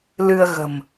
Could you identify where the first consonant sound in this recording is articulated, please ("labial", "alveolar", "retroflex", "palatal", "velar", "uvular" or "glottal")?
alveolar